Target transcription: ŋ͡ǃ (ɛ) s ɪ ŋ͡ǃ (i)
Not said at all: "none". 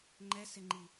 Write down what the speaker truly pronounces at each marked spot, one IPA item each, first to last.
ɛ, i

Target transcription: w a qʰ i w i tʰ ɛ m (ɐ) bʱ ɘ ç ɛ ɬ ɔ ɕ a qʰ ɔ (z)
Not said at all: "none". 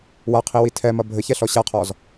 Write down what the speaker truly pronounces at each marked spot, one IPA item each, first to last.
ɐ, z

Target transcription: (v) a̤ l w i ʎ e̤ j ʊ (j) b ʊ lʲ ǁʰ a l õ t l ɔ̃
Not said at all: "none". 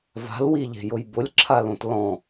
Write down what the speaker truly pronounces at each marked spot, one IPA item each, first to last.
v, j

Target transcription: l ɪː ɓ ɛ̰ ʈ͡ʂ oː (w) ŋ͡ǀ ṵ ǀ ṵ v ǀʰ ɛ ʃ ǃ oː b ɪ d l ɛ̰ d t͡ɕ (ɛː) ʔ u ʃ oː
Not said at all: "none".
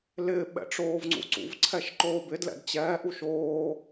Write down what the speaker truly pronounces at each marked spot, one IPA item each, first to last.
v, ɛː

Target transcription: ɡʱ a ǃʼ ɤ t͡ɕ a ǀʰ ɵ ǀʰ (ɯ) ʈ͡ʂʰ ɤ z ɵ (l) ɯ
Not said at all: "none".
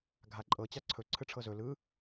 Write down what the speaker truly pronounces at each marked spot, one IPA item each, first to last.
ɯ, l

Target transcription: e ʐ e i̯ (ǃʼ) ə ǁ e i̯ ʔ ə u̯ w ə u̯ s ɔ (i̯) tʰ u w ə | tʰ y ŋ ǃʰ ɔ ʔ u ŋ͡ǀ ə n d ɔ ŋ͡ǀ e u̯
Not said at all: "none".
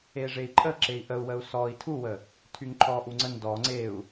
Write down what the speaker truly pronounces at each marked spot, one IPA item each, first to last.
ǃʼ, i̯

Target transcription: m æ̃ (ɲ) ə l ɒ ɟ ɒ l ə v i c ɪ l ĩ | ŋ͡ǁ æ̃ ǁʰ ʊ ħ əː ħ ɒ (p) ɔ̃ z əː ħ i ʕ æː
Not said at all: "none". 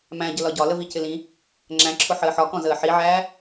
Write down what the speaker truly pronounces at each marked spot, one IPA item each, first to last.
ɟ, k

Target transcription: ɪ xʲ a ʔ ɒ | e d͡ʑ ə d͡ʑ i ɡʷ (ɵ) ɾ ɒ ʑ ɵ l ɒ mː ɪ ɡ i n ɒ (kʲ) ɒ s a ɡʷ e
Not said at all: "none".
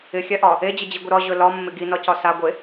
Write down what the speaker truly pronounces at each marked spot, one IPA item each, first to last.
ə, c

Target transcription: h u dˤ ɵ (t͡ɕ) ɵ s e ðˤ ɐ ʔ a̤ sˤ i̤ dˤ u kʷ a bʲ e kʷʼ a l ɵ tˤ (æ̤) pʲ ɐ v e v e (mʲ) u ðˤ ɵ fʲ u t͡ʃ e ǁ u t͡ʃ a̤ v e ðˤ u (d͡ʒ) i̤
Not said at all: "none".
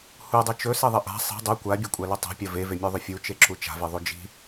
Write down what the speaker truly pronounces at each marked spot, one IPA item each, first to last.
t͡ʃ, a̤, mʲ, d͡ʒ

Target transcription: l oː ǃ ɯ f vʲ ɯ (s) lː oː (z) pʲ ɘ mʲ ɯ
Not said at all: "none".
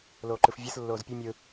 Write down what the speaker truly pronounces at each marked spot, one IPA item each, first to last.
s, z

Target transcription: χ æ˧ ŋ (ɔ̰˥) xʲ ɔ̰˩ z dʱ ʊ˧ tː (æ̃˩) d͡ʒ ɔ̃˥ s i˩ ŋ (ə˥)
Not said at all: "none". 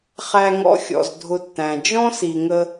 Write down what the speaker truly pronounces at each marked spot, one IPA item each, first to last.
ɔ̰˧, æ̃˩, ə˧

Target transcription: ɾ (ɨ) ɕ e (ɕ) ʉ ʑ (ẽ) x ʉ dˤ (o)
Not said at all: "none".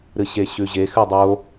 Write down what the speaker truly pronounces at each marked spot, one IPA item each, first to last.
ɨ, ɕ, e, o

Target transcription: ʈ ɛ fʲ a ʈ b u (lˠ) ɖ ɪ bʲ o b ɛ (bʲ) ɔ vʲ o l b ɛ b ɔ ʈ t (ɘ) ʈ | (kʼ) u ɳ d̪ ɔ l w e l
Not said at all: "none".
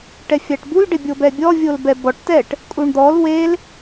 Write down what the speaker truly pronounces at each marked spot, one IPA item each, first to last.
l, bʲ, ɛ, kʼ

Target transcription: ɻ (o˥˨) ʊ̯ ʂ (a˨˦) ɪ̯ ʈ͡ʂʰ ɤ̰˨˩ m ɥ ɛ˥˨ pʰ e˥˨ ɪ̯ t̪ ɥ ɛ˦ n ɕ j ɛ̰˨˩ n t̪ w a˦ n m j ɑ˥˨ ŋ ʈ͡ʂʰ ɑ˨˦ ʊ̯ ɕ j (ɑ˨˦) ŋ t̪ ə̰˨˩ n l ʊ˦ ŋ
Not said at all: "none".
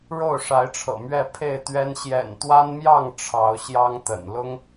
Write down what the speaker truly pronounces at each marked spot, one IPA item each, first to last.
o˥˨, a˨˦, ɑ˦

